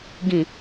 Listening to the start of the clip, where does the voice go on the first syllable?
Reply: low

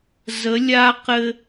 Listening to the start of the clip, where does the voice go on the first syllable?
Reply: rising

